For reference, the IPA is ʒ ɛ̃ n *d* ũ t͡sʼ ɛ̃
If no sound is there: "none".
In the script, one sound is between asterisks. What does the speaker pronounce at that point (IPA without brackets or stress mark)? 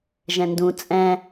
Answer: d